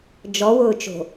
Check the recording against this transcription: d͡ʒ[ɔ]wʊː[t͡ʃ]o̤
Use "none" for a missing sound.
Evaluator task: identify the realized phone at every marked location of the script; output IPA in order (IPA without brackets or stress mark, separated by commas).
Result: ɔ, t͡ʃ